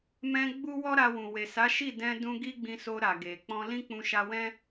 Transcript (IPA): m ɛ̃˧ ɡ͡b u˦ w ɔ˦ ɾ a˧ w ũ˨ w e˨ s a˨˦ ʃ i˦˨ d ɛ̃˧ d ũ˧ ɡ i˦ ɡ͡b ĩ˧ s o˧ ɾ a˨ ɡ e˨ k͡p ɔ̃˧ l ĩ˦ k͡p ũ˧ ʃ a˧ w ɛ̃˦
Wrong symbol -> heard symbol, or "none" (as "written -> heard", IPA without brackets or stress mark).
none